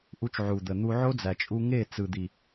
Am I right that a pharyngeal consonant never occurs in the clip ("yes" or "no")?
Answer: no